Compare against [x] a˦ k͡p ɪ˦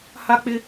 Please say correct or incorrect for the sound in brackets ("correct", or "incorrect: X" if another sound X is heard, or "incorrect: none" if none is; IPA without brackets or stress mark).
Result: incorrect: h